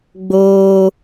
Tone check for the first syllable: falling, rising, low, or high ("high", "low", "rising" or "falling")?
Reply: high